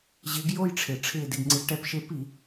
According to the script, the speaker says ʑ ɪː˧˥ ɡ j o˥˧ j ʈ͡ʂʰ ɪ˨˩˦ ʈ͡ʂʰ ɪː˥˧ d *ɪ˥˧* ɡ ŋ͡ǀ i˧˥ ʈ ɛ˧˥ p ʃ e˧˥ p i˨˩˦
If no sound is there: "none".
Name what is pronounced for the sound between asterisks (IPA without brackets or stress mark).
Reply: ɪ˥˧